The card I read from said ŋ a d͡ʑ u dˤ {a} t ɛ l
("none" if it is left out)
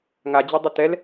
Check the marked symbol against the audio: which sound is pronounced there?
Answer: ə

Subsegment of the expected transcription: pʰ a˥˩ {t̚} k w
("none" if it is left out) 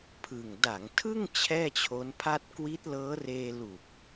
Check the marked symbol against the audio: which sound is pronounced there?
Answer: t̚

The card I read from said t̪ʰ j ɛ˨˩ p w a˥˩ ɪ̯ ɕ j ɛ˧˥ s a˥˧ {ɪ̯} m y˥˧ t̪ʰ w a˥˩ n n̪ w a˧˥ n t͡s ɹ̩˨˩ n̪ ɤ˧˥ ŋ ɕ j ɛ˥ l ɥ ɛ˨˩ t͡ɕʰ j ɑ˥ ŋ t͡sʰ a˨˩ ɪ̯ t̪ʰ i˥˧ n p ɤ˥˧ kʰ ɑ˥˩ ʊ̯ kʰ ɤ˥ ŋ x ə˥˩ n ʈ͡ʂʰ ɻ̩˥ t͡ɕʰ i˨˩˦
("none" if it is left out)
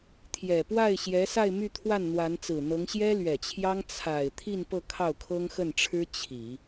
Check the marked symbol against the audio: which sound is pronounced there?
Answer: ɪ̯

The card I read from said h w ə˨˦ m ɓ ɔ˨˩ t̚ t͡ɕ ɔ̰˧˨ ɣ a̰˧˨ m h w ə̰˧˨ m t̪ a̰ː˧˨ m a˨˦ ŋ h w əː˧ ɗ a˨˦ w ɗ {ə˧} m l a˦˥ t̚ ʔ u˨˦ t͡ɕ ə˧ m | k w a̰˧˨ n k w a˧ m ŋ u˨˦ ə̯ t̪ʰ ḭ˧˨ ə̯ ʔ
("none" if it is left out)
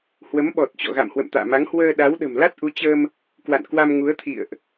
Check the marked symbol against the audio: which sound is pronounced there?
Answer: ə̤˨˩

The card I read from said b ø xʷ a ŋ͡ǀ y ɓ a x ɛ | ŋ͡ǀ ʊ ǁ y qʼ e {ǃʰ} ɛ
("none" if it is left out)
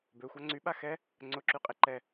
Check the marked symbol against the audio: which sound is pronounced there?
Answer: ǃ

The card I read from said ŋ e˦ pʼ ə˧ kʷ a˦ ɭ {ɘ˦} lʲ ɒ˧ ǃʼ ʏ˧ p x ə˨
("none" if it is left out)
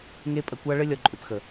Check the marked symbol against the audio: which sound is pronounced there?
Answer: ɘ˦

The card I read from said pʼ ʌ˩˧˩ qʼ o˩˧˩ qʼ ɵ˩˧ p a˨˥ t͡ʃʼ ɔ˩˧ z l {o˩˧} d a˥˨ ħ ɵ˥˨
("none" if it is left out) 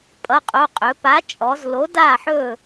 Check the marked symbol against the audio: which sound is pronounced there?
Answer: o˨˥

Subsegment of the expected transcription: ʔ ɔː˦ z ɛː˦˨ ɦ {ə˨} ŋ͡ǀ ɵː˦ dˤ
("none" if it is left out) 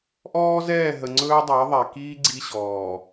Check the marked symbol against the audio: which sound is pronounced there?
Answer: ə˨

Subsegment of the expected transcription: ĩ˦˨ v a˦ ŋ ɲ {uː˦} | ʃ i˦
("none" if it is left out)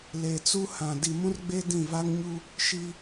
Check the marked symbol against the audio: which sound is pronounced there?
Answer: u˦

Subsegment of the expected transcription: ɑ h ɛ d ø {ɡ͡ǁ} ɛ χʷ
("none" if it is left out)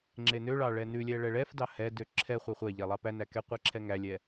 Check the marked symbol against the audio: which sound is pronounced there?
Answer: ǁʰ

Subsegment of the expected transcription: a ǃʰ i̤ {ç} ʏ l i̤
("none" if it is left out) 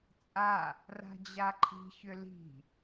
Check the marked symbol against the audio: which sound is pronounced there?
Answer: ç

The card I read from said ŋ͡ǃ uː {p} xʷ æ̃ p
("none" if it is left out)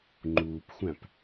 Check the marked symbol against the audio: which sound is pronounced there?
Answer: p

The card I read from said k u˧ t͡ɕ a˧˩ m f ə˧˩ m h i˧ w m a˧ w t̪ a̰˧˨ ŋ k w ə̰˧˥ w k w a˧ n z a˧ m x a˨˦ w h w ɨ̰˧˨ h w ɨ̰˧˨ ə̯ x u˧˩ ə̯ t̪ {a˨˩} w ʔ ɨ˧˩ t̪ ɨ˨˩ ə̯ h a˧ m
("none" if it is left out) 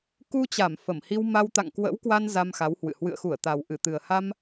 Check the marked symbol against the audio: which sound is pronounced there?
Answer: a˨˩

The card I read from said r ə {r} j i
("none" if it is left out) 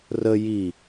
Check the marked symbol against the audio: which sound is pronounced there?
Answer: none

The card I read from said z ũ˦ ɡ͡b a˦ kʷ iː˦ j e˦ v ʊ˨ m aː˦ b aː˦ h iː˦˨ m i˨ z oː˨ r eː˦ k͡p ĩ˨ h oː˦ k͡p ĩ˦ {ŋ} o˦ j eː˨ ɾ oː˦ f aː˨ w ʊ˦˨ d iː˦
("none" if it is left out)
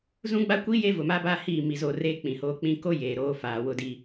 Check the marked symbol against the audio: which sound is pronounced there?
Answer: k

